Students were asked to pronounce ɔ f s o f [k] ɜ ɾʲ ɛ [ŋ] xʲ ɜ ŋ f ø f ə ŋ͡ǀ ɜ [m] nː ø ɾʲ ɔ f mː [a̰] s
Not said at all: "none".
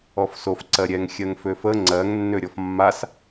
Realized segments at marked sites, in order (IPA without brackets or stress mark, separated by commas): ǀ, ŋ, ŋ, a